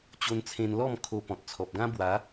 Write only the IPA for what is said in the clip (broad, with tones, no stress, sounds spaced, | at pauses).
t͡ɕ o˧ n t͡sʰ ẽ˧ n l ɔ˥˧ m kʰ o˧ p ɔ̃˨ t̚ t͡sʰ ɔ˨ p̚ ɡ ã˦ b w a˨˦